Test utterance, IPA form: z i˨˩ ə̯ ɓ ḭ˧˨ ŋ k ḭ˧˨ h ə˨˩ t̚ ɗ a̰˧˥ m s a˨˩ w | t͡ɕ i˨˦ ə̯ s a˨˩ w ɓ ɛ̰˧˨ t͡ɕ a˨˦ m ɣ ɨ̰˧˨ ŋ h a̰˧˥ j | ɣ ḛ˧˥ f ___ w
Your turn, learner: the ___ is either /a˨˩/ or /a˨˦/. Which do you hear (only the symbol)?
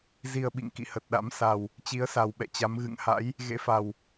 a˨˩